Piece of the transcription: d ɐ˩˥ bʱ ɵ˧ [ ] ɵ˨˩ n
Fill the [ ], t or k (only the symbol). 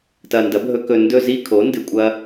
k